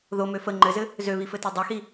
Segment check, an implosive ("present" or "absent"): absent